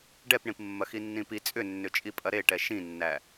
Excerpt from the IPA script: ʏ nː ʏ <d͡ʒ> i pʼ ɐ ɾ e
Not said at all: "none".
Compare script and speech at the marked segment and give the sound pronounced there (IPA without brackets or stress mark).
t͡ʃʼ